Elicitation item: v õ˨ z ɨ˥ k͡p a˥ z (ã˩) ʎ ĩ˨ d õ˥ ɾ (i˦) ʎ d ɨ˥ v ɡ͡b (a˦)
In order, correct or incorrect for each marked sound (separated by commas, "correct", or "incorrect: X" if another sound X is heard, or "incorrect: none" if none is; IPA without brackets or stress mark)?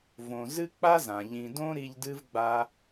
correct, correct, correct